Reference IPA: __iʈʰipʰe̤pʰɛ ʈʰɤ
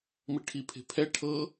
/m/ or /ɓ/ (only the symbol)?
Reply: m